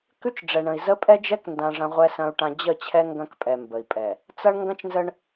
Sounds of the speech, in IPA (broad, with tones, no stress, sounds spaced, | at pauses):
k ʉ˦ t͡ʃ ɖ͡ʐ ɛ˨ ɳ ə̃˨ i̯ z ə˦ pʼ ɛ˦ d͡ʒ ɛ˦ k n d ã˨ ʐ ɐ̃˦ ʁʷ ɛ˦ s ɐ̃˦ u̯ ʈ ã˦ d͡ʑ ə˦˨ t͡ɕʰ ɛ˦ ŋ ɡ ɐ̃˦ k pʼ ɛ˨ m b ə˨ i̯ pʼ ɛ˨ | t͡s ɐ˦ ɳ ŋ ɡ ɐ̃˦ t͡ʃ n z ə˦ ɳ